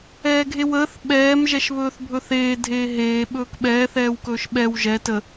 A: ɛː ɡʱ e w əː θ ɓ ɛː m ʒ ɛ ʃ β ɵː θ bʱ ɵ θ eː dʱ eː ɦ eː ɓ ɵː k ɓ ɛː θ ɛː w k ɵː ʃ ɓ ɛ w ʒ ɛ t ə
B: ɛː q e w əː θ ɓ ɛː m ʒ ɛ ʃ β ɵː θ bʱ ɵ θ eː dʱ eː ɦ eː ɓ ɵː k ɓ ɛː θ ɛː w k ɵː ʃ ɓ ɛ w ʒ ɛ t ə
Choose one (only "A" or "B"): A